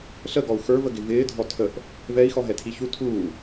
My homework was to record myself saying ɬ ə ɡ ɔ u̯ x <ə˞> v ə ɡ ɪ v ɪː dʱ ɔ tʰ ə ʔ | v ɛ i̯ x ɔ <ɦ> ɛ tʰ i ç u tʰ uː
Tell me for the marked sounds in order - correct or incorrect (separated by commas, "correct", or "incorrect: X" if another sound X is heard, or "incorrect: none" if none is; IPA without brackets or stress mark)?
correct, correct